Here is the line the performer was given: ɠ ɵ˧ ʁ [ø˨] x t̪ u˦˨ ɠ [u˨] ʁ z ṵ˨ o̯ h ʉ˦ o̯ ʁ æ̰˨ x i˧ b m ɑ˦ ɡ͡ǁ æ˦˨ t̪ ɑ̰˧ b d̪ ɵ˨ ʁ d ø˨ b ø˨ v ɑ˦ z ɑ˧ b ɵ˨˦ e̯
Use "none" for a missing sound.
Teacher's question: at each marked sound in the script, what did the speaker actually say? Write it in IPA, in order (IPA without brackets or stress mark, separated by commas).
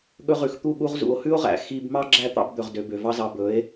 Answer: ʉ˨, u˧